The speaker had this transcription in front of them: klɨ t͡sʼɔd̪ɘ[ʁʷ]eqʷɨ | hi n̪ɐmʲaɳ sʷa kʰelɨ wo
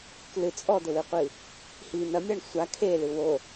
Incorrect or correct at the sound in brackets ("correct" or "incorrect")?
incorrect